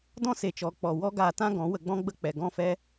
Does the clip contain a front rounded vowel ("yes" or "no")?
no